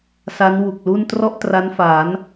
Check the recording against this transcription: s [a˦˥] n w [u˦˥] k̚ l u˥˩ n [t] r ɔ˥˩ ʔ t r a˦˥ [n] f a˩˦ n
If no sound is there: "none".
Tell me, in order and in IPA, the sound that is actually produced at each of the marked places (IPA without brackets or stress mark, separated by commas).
a˦˥, u˨˩, t, n